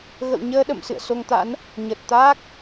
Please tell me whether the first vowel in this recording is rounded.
no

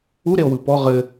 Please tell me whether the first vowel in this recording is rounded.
yes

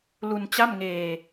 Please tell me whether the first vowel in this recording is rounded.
yes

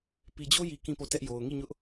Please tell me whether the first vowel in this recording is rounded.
no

